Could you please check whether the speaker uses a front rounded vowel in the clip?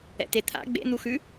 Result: no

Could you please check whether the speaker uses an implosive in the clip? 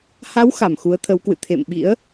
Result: yes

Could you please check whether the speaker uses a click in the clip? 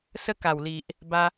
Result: no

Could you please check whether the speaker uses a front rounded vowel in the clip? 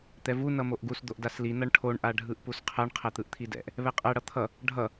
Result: no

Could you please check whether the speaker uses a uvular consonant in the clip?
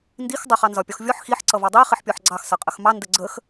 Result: yes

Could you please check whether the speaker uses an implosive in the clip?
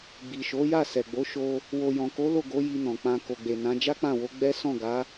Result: no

